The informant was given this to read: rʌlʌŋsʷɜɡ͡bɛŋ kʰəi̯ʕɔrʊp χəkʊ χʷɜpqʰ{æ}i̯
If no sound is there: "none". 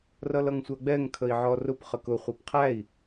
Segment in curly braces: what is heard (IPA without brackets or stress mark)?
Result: æ